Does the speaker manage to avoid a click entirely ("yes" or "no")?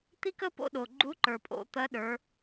no